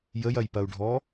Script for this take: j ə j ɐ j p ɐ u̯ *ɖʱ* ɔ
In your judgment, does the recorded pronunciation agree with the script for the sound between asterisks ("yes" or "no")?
yes